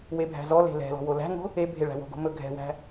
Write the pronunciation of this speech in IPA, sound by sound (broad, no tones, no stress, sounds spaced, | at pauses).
w e bʱ æ̤ z ɔ l e̤ l ɛ̤ l ɔ̤ w o l æ̤ ŋ o̤ | e bʱ e ɭ æ̤ w o̤ ɡ o̤ m ɵ ɡʱ ɛ̤ w æ̤